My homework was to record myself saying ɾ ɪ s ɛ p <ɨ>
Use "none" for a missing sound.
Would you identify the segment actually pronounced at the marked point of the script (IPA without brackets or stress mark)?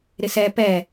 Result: ɛ